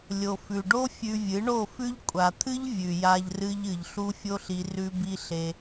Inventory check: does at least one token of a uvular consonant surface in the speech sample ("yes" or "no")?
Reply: no